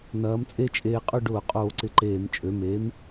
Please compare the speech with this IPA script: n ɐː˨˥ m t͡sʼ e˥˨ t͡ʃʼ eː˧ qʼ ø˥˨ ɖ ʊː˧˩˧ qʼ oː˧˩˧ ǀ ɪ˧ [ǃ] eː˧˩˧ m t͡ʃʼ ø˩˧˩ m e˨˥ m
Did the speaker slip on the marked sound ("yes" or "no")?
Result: no